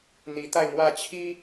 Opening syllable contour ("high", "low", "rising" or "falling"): rising